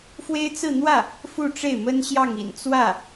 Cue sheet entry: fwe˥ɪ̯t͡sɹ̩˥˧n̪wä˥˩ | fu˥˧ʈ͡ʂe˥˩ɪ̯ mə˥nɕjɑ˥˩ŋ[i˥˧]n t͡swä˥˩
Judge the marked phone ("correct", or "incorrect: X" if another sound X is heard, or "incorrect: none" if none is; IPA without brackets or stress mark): incorrect: ḭ˨˩